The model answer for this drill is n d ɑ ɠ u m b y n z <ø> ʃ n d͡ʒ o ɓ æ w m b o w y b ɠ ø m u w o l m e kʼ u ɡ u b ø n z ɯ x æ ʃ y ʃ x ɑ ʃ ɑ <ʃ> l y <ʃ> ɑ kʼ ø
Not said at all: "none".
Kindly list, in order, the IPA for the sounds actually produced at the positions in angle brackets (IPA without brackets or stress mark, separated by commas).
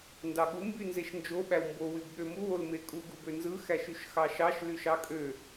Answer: e, ʃ, ʃ